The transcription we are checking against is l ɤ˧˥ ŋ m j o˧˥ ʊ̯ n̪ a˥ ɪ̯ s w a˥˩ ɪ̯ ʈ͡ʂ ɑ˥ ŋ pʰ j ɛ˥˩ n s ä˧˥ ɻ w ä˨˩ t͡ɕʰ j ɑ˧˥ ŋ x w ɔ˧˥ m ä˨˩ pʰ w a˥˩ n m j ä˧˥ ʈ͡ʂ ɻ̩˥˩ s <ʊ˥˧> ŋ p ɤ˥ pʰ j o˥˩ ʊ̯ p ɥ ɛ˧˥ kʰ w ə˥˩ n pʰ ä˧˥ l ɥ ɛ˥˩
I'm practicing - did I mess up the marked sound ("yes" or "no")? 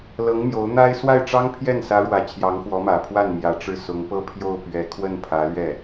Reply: yes